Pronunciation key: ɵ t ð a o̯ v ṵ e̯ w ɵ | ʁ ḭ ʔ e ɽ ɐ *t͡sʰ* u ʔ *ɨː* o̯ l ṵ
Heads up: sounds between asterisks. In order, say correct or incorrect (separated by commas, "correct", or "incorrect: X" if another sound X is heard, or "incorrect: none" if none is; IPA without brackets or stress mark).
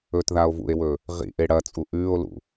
incorrect: t͡sʼ, incorrect: ʉː